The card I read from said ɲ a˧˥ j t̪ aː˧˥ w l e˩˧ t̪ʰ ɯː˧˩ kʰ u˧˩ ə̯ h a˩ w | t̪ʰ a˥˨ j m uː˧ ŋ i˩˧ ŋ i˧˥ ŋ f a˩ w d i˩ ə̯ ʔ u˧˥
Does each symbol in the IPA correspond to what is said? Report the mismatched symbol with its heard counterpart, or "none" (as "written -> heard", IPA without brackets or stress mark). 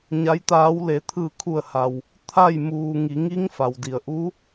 none